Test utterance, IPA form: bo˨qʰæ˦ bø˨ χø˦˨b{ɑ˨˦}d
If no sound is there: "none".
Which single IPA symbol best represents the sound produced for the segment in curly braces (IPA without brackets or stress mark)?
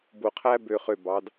ɑ˨˦